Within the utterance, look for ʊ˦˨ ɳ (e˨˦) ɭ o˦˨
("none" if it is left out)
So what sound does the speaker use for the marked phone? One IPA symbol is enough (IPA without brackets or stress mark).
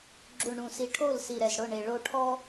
e˨